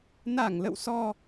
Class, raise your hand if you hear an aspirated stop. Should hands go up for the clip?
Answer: no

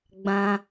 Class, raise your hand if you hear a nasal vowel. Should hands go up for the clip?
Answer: yes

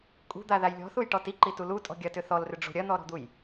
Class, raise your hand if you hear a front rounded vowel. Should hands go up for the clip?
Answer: yes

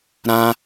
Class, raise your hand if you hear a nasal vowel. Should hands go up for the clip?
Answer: yes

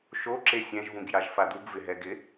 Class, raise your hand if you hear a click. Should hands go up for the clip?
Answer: yes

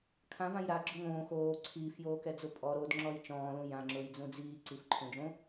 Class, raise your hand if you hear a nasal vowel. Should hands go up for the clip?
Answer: yes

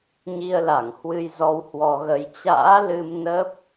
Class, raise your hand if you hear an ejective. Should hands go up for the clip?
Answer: no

